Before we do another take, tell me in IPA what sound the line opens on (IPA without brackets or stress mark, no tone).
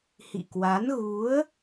h